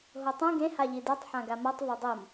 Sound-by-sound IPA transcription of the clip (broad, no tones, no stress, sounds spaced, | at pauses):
ɦ o tˤ ũ ɡ ẽ h a ʎ i d ɯ tˤ ħ ã ɡ a m ʌ tˤ v a dˤ o m